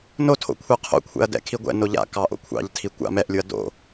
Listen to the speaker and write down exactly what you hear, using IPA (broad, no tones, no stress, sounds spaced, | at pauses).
n o tʰ o̰ kʷʰ ɛ qʰ o̰ kʷʰ ɛ̰ ɐ̯ d ɛ̰ kʰ i ɡʷ ɛ̰ n o ʎ a̰ k ɑ ʔ o̰ kʷʰ ɑ̰ ʎ tʰ i kʷ a̰ m ɛ ʔ lʲ u ɐ̯ d o̰